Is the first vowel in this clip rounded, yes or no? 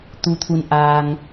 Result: yes